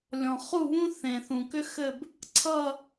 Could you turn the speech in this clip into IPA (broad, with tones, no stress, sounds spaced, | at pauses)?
lʲ ɔ̃˨ χ u˥˧ β ũ˥ θ ẽ˨ θ ũ˨ k ʏ˥ x ɘ˥˧ b | ǀʰ ʌ˥˧